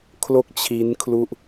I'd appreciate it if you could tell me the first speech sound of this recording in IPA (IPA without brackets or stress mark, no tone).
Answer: kʰ